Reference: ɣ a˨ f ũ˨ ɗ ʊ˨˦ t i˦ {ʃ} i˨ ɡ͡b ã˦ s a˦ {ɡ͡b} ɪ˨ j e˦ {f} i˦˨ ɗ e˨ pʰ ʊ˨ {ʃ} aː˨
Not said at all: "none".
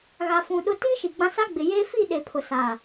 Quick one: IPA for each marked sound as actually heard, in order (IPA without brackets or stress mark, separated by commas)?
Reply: ʃ, ɡ͡b, f, s